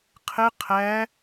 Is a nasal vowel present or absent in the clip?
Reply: absent